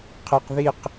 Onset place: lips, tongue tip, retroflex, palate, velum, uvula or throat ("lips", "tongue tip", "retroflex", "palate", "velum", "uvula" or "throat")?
uvula